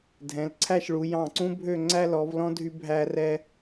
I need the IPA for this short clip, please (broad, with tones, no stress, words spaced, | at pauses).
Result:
dʱɛ̃˩˧lǀʰæ˥˧ʃɭu˩˧ jɑ̃˧˩ǀũ˥bʱø˥˧ ŋ͡ǀæ˥lɔ˩˧vlɔ̃˥ dʱy˧ bʱæ˧rɛ˧